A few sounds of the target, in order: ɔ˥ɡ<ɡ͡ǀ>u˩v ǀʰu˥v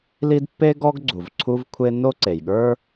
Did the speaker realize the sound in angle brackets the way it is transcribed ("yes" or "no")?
yes